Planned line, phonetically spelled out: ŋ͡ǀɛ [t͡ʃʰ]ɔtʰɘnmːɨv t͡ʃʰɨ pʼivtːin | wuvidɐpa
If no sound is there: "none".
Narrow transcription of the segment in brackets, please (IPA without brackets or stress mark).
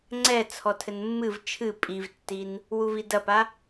t͡sʰ